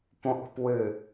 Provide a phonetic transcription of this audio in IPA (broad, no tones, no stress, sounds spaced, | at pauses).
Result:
p õ ʔ ṳ p w ɨ